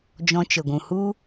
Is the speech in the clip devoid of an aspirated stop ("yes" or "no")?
yes